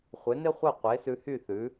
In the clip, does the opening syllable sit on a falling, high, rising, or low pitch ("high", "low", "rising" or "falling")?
rising